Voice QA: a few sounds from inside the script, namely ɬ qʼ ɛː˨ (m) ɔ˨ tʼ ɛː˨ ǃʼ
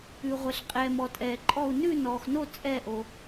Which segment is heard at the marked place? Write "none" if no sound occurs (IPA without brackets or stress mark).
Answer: m